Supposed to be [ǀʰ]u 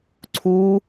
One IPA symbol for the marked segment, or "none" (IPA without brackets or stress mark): ǀʰ